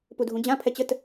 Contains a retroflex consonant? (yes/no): no